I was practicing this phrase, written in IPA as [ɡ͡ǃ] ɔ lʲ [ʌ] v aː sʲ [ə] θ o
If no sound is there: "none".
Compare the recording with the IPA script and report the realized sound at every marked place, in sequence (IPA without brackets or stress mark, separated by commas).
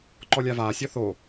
ǃ, a, ɔ